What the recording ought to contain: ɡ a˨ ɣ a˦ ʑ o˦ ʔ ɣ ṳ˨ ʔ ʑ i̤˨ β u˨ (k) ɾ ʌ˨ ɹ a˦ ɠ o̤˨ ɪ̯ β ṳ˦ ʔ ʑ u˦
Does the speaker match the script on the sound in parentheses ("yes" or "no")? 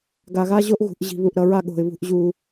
no